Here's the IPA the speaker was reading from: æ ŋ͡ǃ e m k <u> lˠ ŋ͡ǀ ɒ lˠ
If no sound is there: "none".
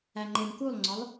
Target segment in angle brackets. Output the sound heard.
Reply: u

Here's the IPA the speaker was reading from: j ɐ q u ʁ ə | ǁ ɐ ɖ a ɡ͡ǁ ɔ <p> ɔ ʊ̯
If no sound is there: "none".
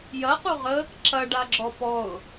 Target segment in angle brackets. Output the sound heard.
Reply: p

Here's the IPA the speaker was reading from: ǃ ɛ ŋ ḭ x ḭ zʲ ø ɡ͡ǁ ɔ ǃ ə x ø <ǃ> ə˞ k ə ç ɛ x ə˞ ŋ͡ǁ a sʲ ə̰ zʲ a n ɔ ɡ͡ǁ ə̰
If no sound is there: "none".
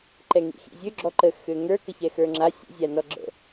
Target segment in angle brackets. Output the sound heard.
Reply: ŋ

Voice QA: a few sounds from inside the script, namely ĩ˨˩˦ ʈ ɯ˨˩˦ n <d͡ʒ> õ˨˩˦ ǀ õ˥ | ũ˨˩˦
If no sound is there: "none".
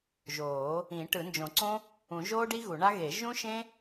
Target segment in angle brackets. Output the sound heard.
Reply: d͡ʒ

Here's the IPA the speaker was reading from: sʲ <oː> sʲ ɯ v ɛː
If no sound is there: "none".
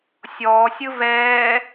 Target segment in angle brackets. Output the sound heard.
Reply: ɔː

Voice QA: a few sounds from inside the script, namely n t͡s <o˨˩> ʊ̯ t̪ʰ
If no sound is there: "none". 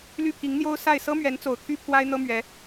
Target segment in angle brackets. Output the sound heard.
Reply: o˨˩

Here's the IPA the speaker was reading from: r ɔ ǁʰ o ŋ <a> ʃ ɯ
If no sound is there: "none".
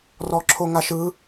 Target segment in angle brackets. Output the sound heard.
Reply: a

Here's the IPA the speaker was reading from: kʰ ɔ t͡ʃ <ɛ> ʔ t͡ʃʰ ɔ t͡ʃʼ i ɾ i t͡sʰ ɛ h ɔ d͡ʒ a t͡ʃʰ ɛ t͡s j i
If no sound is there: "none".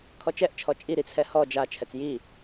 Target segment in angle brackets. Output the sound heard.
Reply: ɛ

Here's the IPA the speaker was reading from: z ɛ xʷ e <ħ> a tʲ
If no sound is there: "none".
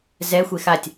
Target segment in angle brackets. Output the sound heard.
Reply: x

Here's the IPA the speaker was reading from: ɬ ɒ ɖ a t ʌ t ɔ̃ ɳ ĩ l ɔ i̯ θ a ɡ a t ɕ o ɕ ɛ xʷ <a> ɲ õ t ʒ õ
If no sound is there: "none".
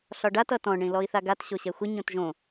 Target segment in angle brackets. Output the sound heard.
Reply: ə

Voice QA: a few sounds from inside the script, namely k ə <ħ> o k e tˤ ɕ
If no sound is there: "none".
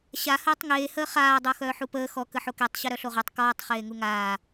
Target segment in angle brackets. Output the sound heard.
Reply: ħ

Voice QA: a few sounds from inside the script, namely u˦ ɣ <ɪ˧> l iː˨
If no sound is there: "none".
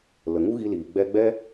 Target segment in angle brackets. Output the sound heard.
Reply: i˧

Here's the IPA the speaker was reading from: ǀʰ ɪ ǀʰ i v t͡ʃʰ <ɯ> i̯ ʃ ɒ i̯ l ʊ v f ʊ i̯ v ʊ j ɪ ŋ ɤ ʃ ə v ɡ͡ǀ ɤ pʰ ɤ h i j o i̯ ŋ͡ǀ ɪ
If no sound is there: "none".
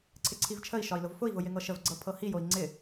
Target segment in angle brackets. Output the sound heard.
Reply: ə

